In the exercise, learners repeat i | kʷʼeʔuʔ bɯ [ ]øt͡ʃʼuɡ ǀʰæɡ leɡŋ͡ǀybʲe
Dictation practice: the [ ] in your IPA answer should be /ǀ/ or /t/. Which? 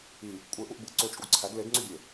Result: ǀ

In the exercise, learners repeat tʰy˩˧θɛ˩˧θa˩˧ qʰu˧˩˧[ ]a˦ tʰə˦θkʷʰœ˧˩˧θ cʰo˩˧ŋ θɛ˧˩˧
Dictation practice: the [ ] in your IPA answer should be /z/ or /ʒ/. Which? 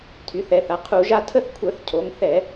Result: ʒ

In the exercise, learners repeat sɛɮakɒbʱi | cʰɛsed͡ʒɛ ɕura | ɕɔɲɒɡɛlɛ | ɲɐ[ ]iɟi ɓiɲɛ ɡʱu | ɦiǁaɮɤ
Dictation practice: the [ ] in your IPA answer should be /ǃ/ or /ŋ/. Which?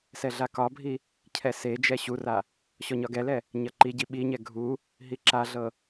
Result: ǃ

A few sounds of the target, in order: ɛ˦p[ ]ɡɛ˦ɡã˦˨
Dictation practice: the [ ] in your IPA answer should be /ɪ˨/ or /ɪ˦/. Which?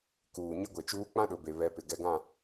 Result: ɪ˨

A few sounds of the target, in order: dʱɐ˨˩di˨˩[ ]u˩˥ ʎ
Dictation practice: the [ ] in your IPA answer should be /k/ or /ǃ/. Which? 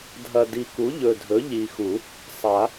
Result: k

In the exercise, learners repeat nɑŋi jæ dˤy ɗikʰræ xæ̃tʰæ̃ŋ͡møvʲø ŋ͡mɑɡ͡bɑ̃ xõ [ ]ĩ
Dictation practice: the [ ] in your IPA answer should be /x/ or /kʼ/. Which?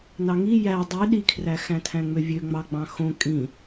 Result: kʼ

